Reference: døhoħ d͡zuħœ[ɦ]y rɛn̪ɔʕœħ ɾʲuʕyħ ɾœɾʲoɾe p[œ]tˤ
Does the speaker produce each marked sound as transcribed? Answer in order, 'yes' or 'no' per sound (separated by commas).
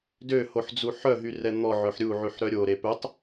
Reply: yes, yes